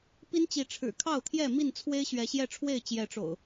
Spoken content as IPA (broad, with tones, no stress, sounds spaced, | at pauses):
p i˦ n t͡ɕ i˨˦ ʈ͡ʂʰ ɻ̩˨˩ kʰ ɑ˥˨ ʊ̯ t̪ʰ j ɛ˥˨ m i˥˨ n t͡sʰ w e˦ ɪ̯ ɕ ɥ ɛ˨˦ ɕ j ɛ˥˨ ʈ͡ʂʰ w e˥˨ ɪ̯ t͡ɕ j ɛ˨˦ ʈ͡ʂ o̰˨˩ ʊ̯